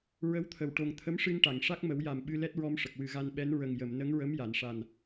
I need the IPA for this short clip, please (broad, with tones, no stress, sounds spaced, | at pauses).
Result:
ɹ ə˧˥ w t̪ʰ ə˨˩˨ w ʈ o˨˩ ŋ t̪ʰ ə˧˥ m ʂ ɨ˧ n ʈ a˨˩˨ ŋ ʂ a˦˥ k̚ m ə˨˩˦ w j a˨˩ m ɓ ɨ˧ l ɛ˦˥ t̚ ɹ ɔ˧ m ʂ ə˨˩ k̚ w ɨ˨˩ ɣ a˧ n ɓ ɛ˧˥ n ɹ ə˨˩ ŋ j ə˨˩˨ m n ə˧˥ ŋ ɹ ə˧˥ m j a˨˩˨ n ʂ a˨˩ n